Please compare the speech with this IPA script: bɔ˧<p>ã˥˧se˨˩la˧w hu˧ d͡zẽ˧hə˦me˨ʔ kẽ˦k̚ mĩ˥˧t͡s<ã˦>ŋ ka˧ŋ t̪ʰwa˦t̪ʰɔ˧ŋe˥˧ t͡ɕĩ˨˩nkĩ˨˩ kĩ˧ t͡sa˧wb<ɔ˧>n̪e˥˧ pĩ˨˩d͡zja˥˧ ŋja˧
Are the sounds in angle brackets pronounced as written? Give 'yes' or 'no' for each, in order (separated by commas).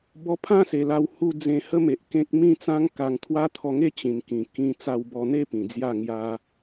no, yes, yes